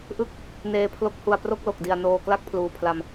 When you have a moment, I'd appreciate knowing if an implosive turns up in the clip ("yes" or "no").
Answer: no